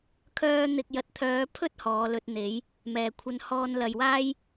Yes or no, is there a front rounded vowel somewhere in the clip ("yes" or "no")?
yes